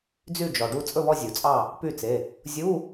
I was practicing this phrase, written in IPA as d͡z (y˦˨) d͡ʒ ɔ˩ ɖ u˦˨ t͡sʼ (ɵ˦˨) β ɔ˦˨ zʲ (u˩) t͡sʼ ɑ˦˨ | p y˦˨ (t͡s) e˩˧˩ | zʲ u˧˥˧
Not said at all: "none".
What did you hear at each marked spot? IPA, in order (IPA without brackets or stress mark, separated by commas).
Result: y˦˨, ɵ˦˨, u˩, t͡s